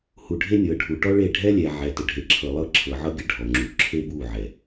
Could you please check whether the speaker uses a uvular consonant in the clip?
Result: no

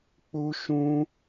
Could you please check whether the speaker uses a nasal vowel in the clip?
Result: yes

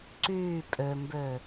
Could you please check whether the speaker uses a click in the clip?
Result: yes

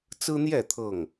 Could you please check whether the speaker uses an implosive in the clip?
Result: no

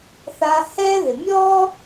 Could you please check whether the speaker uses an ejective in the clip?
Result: no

